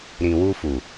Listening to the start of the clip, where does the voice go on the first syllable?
low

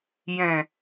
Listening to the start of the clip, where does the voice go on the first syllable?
low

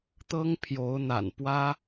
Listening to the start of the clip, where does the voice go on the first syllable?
high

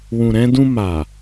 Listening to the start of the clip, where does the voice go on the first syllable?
low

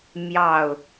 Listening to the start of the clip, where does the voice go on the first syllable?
falling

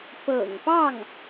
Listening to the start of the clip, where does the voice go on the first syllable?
low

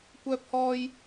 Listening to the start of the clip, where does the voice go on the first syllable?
high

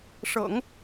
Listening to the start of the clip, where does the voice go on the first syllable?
low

